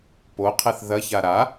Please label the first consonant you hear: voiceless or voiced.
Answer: voiceless